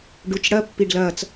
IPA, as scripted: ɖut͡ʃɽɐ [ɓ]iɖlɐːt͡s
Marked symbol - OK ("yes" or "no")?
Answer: no